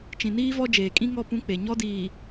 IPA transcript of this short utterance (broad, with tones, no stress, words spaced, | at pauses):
t͡ʃĩ˨niː˦vɔ˦ d͡ʒeː˨kʼĩ˦ŋɔ˦˨ pũ˦ k͡pe˨ ɲɔ˦diː˨